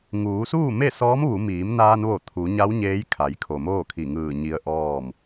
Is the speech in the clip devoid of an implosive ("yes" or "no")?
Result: yes